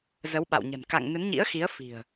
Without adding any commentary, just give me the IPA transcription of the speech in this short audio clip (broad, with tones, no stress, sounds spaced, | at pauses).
z ə˨˦ w ɓ a̰˧˨ w ɲ ə̤˨˩ n k a̰˧˨ ŋ n ɨ˨˦ n ɲ ḭ˧˥ ə̯ x i˨˦ ə̯ f i̤˨˩ ə̯